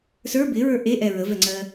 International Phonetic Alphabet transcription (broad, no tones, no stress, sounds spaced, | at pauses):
s ə˞ b ɪ ɹ ə˞ ʔ e ʔ ɛ ɹ ə v ɛ ŋ͡ǀ ɜ